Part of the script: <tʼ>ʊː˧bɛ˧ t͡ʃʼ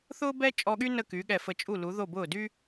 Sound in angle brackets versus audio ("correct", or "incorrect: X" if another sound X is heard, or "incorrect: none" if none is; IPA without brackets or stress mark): incorrect: θ